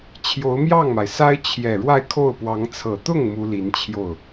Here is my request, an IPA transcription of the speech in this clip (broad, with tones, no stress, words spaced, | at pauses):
t͡ɕʰjo˧˥ʊ̯mjɑ˥˩ŋma˩ɪ̯sa˥ɪ̯ t͡ɕʰjɛ˨˩ ɻwa˥˧ɪ̯kʰo˥˩ʊ̯pwɑ˧˥ŋ t͡sʰɤ˨˩t̪ʊ˥˩ŋ mu˥li˧˥nt͡ɕʰjo˥˩ʊ̯